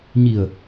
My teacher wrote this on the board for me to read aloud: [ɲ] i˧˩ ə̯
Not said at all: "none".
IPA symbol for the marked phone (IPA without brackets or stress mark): ɲ